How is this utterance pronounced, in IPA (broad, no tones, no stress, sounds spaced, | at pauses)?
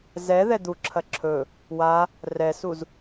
z ɛ ð ɛ d̪ u ǁʰ ɐ ǁʰ ɵ | w a | r ɛ s u z